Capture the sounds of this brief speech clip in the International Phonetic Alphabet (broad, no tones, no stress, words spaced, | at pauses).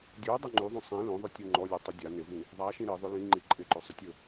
dʲudˤɵ ŋ͡ǃyðˤũ sˤĩ lõðˤɵtʲu ŋ͡ǃɔlʲutˤɵ dʲa nɪvĩ | ðˤaʃĩ ɾiðˤʏ lĩŋ͡ǃi ǃʼɪǃɵsˤʏtʲɵ